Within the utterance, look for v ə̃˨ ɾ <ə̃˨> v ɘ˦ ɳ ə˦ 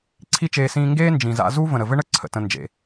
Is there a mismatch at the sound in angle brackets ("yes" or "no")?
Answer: yes